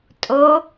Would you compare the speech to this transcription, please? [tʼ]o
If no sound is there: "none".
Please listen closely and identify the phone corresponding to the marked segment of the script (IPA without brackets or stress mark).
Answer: tʼ